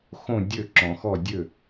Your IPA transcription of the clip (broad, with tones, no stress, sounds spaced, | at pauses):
x õ˥˨ dʲ ø˥˨ ǁ ɔ̃˨ x ɔ˥˨ dʲ ø˥˨